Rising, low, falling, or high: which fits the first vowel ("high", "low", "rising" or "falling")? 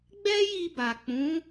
high